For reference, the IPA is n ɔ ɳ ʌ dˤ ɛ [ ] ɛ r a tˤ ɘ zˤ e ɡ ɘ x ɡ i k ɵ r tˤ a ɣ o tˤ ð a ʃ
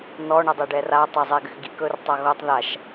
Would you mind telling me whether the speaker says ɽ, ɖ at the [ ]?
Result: ɖ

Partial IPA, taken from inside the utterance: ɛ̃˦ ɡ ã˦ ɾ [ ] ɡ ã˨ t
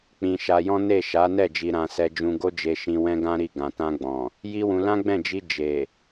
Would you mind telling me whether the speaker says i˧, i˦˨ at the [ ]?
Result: i˦˨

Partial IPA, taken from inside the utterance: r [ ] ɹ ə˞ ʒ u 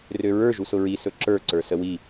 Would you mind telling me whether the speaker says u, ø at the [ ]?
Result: ø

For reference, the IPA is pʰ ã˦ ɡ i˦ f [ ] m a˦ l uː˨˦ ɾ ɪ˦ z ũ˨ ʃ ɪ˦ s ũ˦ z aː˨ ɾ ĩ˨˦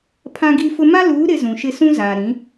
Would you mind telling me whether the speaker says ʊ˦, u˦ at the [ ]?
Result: ʊ˦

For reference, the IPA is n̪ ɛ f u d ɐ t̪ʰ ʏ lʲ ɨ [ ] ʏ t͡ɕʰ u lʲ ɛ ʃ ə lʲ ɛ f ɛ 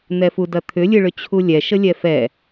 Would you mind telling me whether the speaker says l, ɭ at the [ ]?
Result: ɭ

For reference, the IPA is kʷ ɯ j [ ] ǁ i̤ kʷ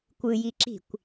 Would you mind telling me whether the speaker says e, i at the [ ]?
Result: i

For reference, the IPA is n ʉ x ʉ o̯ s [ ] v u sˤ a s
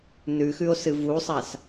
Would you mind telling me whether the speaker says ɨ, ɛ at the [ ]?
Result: ɨ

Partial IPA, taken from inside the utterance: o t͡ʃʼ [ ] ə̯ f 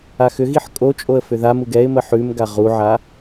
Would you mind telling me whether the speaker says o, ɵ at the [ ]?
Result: o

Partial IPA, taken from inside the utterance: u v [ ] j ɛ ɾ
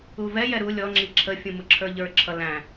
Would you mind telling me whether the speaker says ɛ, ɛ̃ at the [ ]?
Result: ɛ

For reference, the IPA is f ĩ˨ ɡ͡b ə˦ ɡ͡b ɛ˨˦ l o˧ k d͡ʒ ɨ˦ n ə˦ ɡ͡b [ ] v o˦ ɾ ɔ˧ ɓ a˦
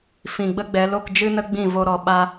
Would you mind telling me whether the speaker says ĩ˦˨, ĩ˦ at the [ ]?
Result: ĩ˦˨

